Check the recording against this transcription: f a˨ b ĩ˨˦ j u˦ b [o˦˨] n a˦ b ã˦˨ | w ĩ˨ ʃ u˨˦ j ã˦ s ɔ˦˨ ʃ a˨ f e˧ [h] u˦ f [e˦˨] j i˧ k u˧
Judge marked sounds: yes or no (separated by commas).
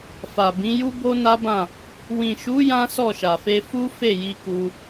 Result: no, no, yes